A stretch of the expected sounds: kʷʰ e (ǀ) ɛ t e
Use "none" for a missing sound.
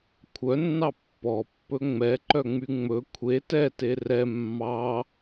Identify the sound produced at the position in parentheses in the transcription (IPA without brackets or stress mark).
t